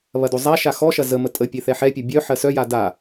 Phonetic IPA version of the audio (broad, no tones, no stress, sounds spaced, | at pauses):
β ɐ d o zˤ a ʃ a x ɔ ʃ ɐ z ə m ə tʼ ə pʲ e θ ɛ ħ ɛ pʲ ʌ bʲ œ ħ ɜ s œ j a d a